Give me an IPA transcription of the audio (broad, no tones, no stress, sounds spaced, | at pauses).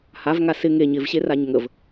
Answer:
h a v ŋ a s ɪ ŋ e ɲ ɪ v ɕ e r a ɲ ŋ ə v